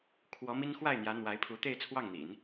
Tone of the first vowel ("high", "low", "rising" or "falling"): rising